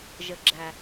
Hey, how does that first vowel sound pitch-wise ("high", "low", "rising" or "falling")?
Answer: low